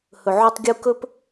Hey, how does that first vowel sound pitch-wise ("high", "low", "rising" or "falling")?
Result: low